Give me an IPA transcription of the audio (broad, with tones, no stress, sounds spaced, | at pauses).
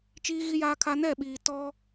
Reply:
t͡ʃ iː˦ ɣ i˦ j aː˦ kʰ a˦ n ɛ˦˨ ɓ iː˨ t ɔ˦